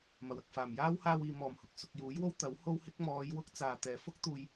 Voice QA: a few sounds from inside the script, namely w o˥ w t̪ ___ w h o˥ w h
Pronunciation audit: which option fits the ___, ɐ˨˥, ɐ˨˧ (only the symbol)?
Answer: ɐ˨˥